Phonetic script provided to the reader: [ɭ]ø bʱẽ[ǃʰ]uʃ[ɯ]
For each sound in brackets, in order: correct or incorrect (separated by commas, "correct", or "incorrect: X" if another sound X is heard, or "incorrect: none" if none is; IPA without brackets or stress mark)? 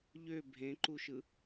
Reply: incorrect: ʎ, incorrect: ǃ, correct